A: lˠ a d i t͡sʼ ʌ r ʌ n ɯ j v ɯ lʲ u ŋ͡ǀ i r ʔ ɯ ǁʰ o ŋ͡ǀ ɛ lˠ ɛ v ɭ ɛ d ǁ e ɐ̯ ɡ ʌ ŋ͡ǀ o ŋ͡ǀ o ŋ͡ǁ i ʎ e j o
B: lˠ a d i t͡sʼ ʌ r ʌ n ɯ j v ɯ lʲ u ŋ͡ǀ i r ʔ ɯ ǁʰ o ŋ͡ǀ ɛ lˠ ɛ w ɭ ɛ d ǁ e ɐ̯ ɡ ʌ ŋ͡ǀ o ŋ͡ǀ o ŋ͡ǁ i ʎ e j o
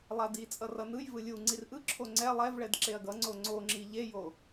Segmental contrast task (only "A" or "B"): A